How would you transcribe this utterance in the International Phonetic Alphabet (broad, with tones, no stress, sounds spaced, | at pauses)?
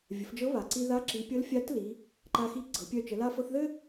vʲ ə˩˧ f d͡ʒ ɤ˧˥ β a˩ ǀ i˧ ð a˧˥ ǁ i˩˧ pʲ ɤ˧˥ l fʲ a˧˥ t l i˩˧ | ǃ a˧ x i˧˥ ɡ͡ǀ ɤ˩˧ pʲ œ˧ t͡ʃ ə˩˧ l a˧ f ɤ˧ θ ð ɘ˥